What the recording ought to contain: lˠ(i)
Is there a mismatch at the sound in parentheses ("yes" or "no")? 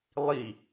no